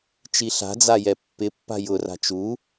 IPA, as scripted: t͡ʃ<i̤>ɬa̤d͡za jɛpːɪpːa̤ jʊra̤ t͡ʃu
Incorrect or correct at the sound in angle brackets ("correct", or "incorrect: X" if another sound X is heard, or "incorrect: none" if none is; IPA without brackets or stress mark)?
incorrect: i